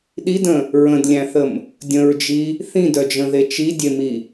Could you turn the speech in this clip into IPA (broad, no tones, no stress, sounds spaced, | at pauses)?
ɗ i d ə̃ | ɹ ə̃ d lʲ æ̃ θ ə m | dʲ ə̃ ɹ d͡ʒ i | θ ĩ d œ d͡ʒ ə̃ ð e t͡ʃ i dʲ e m i